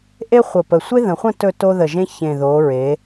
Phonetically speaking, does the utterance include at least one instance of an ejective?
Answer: no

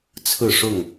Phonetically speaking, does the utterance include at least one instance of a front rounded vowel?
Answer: no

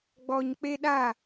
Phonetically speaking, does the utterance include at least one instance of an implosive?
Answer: yes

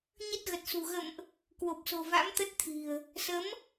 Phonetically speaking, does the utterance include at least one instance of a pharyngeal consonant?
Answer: no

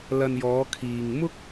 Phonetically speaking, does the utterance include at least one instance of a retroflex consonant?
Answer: no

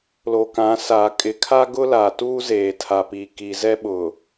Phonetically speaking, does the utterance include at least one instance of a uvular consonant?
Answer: no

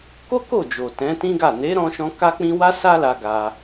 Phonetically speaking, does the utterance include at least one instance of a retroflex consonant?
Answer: no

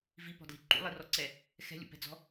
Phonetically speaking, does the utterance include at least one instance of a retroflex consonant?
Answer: no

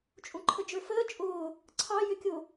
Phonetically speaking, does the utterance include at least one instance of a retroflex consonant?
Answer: no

